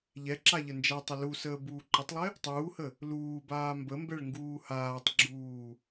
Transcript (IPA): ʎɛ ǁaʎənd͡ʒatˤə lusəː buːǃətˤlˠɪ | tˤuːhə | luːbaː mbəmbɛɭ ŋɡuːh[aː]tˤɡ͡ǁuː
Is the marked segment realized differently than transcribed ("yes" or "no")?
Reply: no